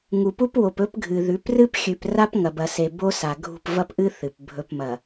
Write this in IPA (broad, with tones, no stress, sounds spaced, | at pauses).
ŋ u˨ p u˦ p w o˨ p ɵ˦ p ɡʱ ɨ˨ ð ʉ˨˦ p r ɨ˦ p xʲ ʉ˨ p r a˦ p ŋ ɐ˨ b ɐ˨ s e˨ b o˦ s a˨ ɡʱ ṳ˦˨ p v ɐ˦ p ʔ ɨ˦ θ ɨ˨ p bʱ ɵ˨ p m ɐ˨